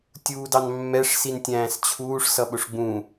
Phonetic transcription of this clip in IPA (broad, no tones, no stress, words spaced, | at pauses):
tʲuːdɑnmːɛʂ sintʲæ̃ːst͡ɕʰuːʂ sʌɓʊʂɡ͡bũ